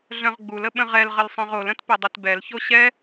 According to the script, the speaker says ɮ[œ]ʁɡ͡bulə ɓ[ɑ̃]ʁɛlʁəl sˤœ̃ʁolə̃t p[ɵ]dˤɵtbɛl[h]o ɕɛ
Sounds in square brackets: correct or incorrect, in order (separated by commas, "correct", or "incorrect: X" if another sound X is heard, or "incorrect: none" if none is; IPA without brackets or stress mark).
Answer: incorrect: œ̃, incorrect: ə̃, incorrect: œ, incorrect: ç